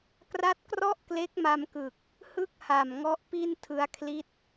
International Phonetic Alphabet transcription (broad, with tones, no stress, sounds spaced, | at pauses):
k r a˦˥ t̚ k r ɔ˥˩ ʔ k l e˦˥ k̚ m a˧ m k ɯ˨˩ k̚ | h ɯ˥˩ k̚ h a˨˩ m ŋ ɔ˦˥ ʔ p i˥˩ n tʰ ɯ˧ a̯ kʰ l i˦˥ t̚